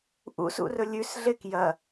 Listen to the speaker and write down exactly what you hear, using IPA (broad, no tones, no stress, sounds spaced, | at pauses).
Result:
ʔ ṵ s ṵ r ɵ lʲ ʉ s ɮ e k j ɐ